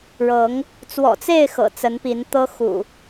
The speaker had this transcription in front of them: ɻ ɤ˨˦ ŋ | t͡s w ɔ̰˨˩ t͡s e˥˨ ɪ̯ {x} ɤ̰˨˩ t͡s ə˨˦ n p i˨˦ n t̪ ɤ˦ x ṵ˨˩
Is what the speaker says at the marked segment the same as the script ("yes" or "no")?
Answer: yes